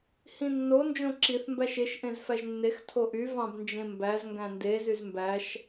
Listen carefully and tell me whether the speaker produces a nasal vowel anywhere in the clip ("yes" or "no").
yes